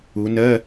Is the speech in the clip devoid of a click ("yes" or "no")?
yes